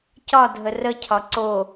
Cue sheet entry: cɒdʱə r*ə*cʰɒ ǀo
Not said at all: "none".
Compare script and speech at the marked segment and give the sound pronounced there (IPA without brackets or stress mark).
ə